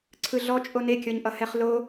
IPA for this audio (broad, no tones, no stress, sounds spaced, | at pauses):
ǀʰ ɯ ɮ ɔ t͡ʃʼ o n e kʲ ɔ ɲ ʔ ʌ h ɛ χ l o